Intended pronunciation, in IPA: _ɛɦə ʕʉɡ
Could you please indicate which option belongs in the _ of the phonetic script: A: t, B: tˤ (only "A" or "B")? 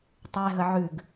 B